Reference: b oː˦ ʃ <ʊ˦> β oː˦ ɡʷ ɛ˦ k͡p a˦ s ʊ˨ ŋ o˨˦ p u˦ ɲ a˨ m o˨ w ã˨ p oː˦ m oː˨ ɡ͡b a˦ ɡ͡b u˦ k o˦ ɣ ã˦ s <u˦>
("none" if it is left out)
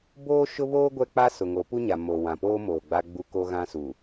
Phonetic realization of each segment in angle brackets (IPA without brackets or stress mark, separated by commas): ʊ˦, u˨